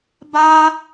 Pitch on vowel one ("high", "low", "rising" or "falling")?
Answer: high